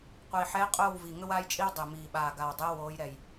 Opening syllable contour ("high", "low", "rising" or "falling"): low